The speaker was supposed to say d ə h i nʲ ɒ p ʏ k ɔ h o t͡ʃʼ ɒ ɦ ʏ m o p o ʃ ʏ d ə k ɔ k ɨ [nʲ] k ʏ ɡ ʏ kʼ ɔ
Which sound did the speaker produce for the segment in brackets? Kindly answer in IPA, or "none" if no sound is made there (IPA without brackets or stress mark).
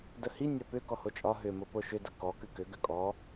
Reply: none